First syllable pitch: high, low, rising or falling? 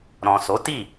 low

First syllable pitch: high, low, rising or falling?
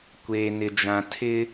low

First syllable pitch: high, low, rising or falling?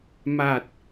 low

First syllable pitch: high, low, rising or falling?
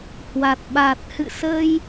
low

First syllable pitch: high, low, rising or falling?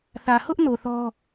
low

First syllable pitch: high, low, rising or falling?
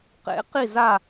rising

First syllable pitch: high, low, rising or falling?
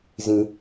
low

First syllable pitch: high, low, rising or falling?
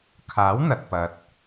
rising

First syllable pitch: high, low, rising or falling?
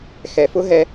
low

